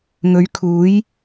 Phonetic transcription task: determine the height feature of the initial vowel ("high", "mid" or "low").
mid